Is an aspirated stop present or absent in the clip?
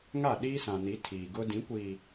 present